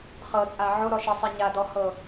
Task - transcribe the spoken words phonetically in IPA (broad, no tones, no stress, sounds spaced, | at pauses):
χ ɤ t͡sʼ a ʕ o ɾ ɔ ʃ e sˤ ɛ ɲ a d ɔ h ɤ